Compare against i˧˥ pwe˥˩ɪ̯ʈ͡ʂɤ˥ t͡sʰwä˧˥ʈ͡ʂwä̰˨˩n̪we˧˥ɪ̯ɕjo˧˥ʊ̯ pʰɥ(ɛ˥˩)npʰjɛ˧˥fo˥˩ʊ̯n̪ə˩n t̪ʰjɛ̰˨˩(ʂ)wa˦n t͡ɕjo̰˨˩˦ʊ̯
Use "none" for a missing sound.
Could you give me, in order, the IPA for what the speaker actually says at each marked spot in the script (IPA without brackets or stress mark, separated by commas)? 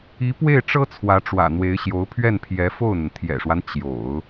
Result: ɛ˥˩, ʂ